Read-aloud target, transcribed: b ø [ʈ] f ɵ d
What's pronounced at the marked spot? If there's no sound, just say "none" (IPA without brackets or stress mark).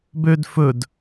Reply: d